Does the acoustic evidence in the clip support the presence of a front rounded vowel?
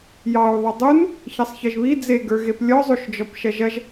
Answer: yes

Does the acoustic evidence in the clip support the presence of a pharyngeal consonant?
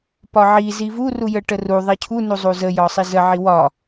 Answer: yes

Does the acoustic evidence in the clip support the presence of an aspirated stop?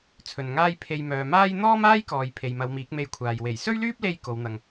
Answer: yes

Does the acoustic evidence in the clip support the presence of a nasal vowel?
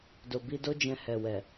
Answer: yes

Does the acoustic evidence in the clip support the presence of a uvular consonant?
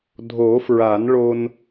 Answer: no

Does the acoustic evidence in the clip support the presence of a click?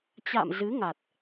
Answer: no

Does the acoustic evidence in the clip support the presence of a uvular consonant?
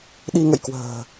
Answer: no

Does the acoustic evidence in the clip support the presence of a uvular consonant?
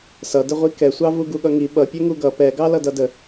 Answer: yes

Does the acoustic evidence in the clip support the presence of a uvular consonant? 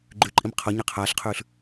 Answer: yes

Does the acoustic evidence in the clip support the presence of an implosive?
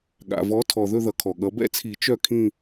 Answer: yes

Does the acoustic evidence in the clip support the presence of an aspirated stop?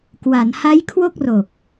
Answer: yes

